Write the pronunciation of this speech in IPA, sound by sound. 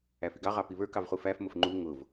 æ f i ɡ ɑ ʁ ɑ p i β ə˞ k ɑ v χ u f æ f m ʊ f ŋ͡ǃ u ŋ ʊ v

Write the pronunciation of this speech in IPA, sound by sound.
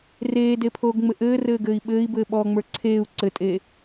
r eː d e pʰ oː ɡ ŋ͡m ɘ ʔ ɘː r ɘː ɡ ɘː i̯ ɓ ɘː i̯ b ɘː ɓ ɔː ŋ͡m ə˞ ǀʰ eː u̯ ǀ ɘ tʼ eː

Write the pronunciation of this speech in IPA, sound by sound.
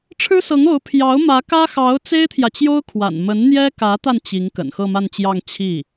ʈ͡ʂʰ ɻ̩˥ s ɤ˧˥ ŋ o˧˥ ʊ̯ pʰ j ɑ˧˥ ʊ̯ m ä˧˥ k ä˥ x ɑ˧˥ ʊ̯ t͡s e˥ ɪ̯ t̪ʰ j ä˨ t͡ɕ j o˥ ʊ̯ kʰ w a̰˨˩ n m ə˧˥ n n̪ j ɛ˥ k ä˧˥ t̪ a˧ n t͡ɕ i˧˥ ŋ k ə̰˨˩ n x ɤ˥˧ m a˥˧ n t͡ɕ j ɑ˥˧ ŋ t͡ɕʰ i˥˩

